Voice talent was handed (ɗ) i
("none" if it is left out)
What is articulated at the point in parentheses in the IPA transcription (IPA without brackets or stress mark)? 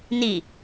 n